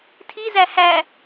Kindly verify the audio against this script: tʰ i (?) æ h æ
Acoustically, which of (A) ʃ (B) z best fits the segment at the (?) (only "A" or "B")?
B